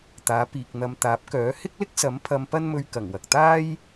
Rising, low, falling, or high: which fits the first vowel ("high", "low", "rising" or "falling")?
rising